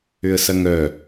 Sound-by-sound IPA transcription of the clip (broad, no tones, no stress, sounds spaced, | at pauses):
ʏ ə̯ s ɐ ŋ œ